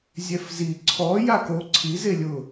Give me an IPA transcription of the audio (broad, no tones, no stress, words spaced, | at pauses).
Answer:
zʲɛfzi ǀʰɔ jako ǀʰi zelʲʊ